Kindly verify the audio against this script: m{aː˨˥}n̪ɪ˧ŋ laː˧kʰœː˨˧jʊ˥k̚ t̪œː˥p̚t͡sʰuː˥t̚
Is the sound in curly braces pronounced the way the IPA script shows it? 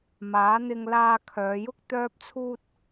yes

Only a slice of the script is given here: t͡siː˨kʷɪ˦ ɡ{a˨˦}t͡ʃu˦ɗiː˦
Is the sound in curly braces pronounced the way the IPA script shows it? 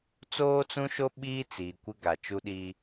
no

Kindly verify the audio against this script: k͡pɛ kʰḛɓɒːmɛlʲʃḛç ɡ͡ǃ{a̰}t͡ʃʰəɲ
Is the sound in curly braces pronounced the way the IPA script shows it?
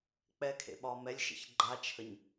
no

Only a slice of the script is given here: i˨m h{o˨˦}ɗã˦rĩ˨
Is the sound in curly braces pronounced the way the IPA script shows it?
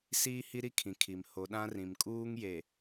yes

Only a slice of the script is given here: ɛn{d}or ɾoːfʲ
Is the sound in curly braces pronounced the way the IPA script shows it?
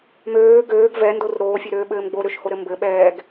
yes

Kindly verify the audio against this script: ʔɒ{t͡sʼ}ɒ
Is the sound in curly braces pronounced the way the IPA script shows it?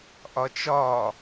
no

